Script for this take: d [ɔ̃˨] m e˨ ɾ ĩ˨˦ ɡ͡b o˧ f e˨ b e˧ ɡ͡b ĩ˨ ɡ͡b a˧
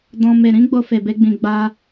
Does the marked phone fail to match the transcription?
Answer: yes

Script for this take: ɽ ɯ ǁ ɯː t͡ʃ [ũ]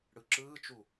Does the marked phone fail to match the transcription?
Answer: yes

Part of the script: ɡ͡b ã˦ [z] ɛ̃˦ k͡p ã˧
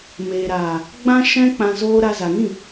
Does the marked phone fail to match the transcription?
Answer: yes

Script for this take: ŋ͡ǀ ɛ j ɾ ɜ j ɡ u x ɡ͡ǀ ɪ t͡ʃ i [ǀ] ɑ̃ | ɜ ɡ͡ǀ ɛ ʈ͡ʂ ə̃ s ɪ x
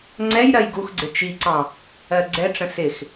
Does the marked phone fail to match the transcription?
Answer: no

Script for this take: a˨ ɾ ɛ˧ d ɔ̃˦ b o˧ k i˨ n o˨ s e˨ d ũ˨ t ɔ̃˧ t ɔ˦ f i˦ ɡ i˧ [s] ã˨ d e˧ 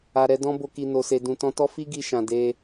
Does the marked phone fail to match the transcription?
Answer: yes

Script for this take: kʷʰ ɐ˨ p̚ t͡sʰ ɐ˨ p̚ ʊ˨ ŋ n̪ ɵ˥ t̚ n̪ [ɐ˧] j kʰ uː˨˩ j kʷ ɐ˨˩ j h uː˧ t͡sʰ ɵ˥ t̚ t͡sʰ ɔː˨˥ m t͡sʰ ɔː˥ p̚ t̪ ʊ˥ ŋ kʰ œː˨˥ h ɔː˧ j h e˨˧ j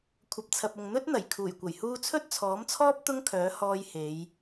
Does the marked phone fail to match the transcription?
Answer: yes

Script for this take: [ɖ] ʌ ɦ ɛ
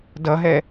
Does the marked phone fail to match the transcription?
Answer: yes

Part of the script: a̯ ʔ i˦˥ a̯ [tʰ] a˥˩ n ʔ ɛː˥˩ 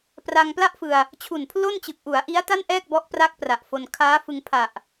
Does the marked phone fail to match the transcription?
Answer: yes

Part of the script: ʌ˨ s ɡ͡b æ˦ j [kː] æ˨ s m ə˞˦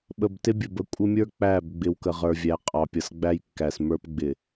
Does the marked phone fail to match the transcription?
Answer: no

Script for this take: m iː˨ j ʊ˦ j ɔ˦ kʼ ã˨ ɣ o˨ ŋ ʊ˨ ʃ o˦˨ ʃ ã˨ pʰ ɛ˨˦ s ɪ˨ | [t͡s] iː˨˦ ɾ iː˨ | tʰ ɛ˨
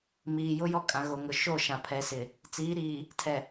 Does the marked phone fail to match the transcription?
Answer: no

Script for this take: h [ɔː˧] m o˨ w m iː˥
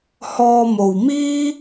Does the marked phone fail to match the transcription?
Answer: no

